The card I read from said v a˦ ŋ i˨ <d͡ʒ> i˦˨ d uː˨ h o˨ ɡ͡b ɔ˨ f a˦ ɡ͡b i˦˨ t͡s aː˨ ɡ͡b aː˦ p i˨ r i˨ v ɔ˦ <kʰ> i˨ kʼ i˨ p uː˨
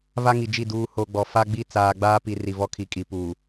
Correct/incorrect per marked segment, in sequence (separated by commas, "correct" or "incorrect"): correct, correct